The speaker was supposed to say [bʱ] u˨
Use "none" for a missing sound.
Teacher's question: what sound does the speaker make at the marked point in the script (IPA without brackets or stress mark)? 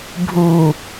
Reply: bʱ